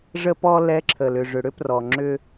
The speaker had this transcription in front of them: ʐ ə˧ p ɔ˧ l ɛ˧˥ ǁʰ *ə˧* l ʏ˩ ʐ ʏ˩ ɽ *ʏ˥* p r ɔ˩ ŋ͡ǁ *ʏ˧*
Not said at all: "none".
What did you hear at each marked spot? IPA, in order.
ə˩, ʏ˥, ʏ˧

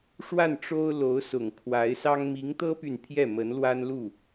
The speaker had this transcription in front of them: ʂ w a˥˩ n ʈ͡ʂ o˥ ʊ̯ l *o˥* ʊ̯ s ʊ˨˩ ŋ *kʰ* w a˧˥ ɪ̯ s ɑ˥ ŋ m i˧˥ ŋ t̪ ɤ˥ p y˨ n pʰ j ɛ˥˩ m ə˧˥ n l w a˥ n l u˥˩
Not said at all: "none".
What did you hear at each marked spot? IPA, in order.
o˧˥, kʰ

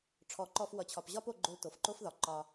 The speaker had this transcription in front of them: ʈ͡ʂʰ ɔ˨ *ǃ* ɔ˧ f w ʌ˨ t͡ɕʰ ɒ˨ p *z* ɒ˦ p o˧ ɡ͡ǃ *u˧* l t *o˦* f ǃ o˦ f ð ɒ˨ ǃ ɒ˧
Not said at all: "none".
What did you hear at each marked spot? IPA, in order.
ǃ, ʑ, o˧, o˨

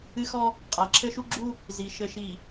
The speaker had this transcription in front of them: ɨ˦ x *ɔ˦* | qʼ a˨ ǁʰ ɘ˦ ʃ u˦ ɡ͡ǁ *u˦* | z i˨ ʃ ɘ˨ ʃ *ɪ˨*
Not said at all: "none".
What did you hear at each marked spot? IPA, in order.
ɔ˦, u˦, i˨

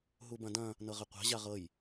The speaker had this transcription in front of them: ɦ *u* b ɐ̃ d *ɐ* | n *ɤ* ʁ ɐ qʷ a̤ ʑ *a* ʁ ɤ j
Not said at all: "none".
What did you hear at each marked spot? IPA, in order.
u, ɐ̃, ɤ, a

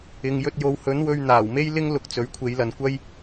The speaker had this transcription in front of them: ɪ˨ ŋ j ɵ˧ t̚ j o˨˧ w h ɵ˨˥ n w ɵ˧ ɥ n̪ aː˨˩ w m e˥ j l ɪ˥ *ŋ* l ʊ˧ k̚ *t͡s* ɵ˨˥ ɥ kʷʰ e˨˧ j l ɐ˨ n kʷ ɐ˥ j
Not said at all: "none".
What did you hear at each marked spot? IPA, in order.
ŋ, t͡s

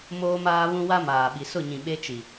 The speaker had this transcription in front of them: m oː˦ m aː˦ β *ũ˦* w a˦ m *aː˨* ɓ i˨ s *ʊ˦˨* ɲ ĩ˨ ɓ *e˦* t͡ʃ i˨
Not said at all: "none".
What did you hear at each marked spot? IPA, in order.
ũ˦, aː˨, ʊ˦˨, e˦

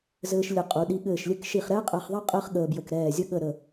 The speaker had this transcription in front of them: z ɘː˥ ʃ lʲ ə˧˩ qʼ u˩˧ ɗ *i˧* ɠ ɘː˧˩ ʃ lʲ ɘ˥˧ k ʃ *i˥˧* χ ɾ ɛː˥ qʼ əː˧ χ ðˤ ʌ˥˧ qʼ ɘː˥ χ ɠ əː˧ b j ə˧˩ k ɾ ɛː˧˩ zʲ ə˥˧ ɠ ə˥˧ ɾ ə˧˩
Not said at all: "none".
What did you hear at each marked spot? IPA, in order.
i˧, i˧˩

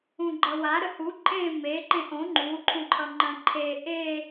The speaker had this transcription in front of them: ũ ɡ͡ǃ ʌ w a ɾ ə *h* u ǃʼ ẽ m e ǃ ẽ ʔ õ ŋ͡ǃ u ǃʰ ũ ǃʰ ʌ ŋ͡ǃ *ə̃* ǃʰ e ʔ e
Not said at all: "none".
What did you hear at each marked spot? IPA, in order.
h, ə̃

